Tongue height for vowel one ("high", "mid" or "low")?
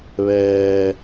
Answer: mid